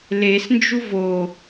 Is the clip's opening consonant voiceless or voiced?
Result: voiced